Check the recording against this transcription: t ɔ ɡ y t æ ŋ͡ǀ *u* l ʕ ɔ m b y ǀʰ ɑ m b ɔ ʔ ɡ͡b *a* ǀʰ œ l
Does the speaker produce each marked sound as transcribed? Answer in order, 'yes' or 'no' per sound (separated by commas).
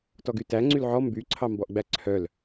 no, no